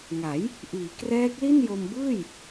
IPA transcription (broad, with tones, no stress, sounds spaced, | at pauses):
ŋ a˩˦ j | ʔ iː˩˦ k r ɛː˦˥ k̚ l i˥˩ n j o˧ m b ɯː˥˩ j